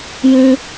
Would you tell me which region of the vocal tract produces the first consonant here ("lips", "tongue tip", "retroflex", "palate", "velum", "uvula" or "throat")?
palate